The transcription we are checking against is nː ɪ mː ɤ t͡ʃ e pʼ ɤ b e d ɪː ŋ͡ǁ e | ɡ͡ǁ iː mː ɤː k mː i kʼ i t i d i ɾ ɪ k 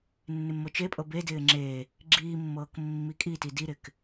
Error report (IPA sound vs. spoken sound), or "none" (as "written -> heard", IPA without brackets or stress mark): none